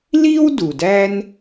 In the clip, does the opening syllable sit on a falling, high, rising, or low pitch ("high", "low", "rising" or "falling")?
high